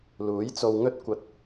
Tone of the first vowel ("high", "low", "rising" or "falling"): rising